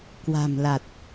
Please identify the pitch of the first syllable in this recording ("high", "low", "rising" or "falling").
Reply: low